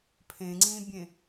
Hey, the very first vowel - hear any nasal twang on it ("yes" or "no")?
yes